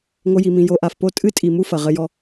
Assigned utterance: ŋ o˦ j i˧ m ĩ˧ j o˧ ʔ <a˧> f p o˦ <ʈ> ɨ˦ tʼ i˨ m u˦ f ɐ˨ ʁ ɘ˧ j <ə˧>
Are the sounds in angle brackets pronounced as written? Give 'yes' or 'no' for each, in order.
yes, no, no

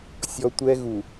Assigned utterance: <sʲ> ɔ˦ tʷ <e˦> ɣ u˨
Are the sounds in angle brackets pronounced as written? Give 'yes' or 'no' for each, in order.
yes, no

